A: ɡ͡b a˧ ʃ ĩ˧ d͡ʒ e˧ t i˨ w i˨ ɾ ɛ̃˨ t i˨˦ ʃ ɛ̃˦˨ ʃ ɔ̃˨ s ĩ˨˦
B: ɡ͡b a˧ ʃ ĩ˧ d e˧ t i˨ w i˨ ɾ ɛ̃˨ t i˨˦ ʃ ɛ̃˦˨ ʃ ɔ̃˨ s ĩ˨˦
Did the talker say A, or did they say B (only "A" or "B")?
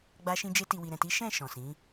A